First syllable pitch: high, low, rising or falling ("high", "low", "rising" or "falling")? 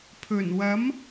low